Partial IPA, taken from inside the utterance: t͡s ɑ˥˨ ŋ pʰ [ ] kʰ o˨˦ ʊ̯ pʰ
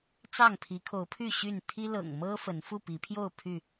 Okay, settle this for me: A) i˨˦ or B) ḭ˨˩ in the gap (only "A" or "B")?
A